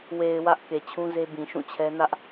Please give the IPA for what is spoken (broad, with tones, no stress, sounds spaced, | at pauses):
w e˨ ɪ̯ w ä˦ ʔ k e˨ t͡ɕʰ ũ˦ z e˦ b ĩ˨ ʃ ũ˦˨ t͡ɕʰ ɛ˦ n ä˦ ʔ